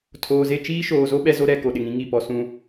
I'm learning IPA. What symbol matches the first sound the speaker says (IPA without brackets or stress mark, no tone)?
tʰ